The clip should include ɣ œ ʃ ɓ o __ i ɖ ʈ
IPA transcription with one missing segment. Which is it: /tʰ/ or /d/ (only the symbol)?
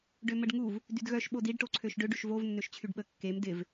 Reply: d